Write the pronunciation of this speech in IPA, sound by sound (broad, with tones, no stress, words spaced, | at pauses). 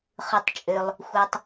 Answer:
χɯ˩tˤt͡ʃʼø˩lˠ | xʷe˩tˤ